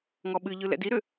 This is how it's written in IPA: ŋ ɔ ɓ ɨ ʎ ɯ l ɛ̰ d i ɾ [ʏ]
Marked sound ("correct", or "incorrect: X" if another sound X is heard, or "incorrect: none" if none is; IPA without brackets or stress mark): correct